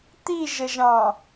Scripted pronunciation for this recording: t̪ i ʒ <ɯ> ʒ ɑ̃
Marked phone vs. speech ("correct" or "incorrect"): incorrect